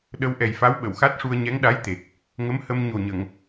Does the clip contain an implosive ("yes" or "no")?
yes